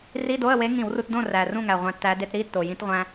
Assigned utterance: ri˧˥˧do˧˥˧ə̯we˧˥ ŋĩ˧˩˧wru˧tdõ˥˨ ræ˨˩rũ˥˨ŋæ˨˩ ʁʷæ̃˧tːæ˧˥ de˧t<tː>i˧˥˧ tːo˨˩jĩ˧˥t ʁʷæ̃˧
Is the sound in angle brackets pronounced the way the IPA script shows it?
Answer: no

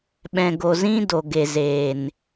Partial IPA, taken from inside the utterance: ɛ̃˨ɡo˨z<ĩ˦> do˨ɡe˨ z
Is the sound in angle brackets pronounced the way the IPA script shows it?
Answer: yes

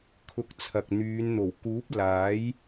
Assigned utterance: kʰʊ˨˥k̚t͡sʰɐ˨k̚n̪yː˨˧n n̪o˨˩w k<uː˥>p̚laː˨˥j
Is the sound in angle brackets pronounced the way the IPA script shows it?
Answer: no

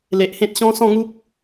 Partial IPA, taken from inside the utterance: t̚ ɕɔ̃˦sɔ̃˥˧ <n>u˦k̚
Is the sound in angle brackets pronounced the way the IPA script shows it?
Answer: no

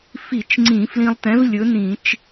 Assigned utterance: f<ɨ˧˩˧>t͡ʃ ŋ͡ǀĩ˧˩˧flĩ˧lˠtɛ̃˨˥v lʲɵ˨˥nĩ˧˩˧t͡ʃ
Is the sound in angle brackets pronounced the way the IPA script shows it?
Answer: no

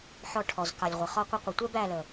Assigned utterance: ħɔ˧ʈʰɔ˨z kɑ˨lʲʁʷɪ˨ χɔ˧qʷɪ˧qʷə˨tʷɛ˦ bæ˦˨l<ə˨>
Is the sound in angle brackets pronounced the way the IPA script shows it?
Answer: yes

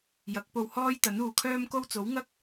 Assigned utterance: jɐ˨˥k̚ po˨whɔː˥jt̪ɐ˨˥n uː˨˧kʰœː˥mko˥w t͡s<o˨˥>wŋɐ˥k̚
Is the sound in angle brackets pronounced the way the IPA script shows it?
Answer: yes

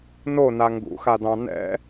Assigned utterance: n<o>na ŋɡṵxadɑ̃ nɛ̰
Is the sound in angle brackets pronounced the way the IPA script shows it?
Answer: yes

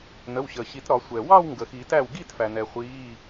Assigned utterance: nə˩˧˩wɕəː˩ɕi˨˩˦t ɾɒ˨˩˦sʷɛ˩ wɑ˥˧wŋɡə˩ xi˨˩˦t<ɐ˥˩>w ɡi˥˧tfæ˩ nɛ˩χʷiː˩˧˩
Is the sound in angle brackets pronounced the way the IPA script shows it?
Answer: no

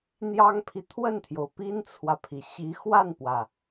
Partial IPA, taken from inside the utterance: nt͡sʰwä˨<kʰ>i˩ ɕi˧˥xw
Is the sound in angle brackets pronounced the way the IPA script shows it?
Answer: no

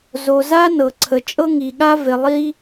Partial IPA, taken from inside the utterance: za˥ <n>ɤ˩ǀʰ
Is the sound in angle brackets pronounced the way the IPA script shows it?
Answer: yes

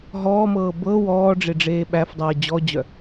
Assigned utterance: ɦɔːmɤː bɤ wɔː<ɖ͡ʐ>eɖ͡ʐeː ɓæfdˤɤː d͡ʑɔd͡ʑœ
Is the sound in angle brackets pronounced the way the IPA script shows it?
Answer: yes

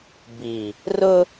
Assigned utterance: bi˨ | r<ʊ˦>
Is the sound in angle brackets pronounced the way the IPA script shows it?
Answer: yes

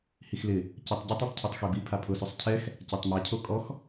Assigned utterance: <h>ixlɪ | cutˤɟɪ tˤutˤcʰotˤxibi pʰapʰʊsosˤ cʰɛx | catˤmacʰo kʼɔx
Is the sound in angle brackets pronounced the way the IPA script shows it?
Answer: yes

